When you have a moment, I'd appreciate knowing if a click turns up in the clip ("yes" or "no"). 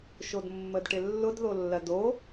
no